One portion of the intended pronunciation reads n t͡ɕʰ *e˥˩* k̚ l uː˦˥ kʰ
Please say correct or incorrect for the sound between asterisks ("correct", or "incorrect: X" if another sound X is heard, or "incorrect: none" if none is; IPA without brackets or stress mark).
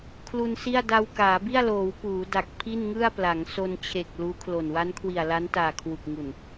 incorrect: e˨˩